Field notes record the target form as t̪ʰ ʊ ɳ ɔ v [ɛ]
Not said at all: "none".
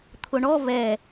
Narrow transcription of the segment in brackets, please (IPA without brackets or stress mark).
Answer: ɛ